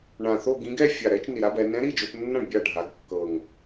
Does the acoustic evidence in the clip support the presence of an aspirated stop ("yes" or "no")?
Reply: no